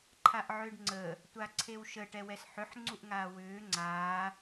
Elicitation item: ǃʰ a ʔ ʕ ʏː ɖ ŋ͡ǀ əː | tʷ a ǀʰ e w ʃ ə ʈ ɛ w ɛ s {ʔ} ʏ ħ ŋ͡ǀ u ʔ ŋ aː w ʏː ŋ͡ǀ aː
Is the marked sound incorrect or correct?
incorrect